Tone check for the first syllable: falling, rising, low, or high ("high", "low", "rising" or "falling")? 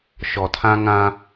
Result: low